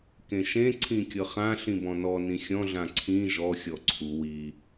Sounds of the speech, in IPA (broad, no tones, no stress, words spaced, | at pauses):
kẽʃẽ ǀʰĩkʲɤχã ɬĩbɔ̃nɔ nĩxʲɔ̃ ɮãǀʰĩ ʒɔ xʲɔǀʰu wi